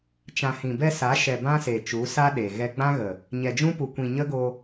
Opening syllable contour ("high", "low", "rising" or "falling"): low